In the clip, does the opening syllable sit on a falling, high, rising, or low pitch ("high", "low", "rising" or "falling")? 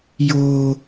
high